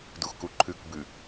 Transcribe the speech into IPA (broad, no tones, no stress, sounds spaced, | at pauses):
d u x k u ǃʰ ʉ k b ʉ